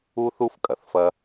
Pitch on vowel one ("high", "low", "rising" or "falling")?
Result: high